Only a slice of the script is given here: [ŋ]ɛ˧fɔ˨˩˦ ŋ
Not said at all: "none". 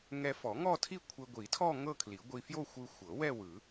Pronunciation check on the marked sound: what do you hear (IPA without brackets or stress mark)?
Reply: ŋ